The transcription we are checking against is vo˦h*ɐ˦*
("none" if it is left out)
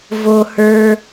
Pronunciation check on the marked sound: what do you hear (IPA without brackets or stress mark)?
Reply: ə˞˦